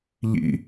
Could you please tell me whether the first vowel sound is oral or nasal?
oral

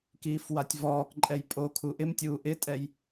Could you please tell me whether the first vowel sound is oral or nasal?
oral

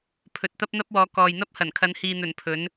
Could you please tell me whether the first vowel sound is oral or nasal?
oral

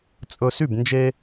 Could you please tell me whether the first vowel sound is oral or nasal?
oral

